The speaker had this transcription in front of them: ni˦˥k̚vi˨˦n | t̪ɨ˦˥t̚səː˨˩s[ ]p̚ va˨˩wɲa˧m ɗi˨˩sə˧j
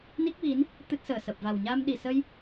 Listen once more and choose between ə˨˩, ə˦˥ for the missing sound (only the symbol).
ə˨˩